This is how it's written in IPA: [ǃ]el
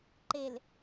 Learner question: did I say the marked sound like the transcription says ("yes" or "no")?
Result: yes